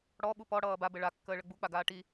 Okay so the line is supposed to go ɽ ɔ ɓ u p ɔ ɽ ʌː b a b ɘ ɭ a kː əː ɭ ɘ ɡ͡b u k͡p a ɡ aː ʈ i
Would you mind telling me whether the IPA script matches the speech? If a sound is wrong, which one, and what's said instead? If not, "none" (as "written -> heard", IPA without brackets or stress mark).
none